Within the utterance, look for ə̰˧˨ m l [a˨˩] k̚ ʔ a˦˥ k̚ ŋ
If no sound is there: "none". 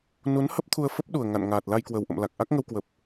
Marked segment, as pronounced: a˨˩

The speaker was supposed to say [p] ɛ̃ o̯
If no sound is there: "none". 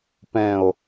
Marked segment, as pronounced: p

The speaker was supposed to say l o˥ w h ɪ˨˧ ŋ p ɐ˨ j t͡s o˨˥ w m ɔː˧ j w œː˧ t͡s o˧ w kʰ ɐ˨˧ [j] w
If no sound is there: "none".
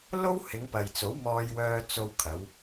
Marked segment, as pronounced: none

